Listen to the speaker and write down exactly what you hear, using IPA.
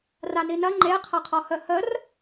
r a n i n ɐ ŋ͡ǃ e qʰ ɐ qʰ ɔ h ə h ə r

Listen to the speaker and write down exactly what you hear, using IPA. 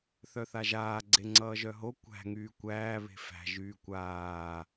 θ œ θ a ʒ aː ɡ͡ǀ e ŋ͡ǀ ʌː ʒ œ ɦ o kʷ æ̤ ŋ yː kʷ æː β e̤ f æ̤ ʒ yː kʷ aː

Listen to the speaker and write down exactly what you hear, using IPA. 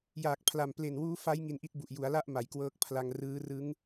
j aː˨˩ k̚ pʰ l a˨˩ m p l e˨˩ n w uː˦˥ f a˦˥ j ŋ i˧ n ʔ i˦˥ t̚ b u˨˩ ʔ j u˩˦ a̯ l a˥˩ ʔ m a˩˦ j k w ɤː˦˥ k̚ pʰ l a˧ ŋ r ɯː˦˥ r ɯ˦˥ ŋ

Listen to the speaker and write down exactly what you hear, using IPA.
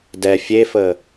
d ɛ fʲ e f ə

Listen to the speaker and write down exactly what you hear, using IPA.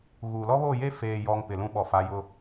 ɣ uː˨ l ɔ˦ β oː˦˨ j eː˦ f eː˨ j ɔ˨ ŋ p ɪ˨ l ũ˦ ɓ ɔ˨ f a˨˦ j ʊ˦

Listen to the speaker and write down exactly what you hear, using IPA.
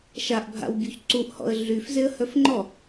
ʃ a ʔ bʱ a̰ w bʲ u ç ǀ u ʔ h ɔ̰ ə̯ ɮ y f z e ə̯ h œ f ŋ͡ǃ ɔ

